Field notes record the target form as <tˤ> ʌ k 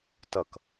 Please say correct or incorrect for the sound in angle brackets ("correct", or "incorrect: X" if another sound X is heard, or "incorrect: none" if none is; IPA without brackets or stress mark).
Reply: incorrect: t